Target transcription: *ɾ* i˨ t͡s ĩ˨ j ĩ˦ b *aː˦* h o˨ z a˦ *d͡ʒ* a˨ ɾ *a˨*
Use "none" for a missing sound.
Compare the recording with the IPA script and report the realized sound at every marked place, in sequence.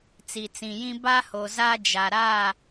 t͡s, a˦, d͡ʒ, a˦˨

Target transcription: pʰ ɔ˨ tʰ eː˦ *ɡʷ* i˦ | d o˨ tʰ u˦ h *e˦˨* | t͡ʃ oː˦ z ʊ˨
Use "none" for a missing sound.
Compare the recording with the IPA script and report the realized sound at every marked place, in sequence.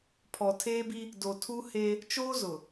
b, e˦

